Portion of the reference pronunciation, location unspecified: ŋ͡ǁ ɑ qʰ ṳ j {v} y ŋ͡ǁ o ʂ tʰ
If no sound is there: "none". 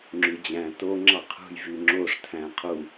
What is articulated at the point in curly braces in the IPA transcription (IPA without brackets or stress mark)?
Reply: v